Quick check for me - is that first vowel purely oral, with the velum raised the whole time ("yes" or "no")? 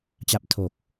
yes